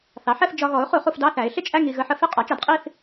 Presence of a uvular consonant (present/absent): present